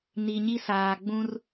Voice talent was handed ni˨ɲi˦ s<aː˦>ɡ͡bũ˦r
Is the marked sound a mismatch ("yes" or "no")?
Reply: yes